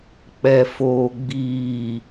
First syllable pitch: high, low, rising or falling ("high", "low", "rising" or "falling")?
low